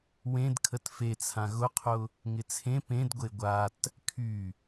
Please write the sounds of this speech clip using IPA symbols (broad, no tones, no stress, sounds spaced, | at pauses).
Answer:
w ẽ d kʰ ə t f e t͡sʰ ã ɣ ʊ qʰ ʊ | ŋ ɪ t͡sʰ ẽ p ẽ d ɡʷ e ɡʷ a t | kʰ y